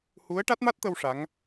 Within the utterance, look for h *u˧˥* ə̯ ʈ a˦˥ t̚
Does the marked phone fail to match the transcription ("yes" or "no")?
no